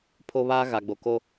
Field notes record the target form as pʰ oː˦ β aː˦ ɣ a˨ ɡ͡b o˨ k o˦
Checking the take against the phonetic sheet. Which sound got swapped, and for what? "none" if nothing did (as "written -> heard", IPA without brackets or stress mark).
oː˦ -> o˦